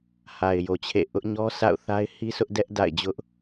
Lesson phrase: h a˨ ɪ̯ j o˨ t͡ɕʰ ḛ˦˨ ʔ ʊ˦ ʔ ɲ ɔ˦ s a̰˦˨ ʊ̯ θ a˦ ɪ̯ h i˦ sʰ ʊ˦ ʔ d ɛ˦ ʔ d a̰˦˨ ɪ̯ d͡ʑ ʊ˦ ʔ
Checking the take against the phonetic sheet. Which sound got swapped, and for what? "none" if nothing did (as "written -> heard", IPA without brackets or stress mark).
none